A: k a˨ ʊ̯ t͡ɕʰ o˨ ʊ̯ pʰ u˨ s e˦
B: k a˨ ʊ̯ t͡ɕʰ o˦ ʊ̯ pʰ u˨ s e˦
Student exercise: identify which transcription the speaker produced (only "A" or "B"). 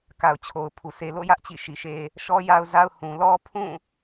A